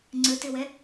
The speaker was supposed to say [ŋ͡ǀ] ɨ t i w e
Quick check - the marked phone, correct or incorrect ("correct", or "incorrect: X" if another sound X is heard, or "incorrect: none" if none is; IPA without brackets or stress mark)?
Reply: correct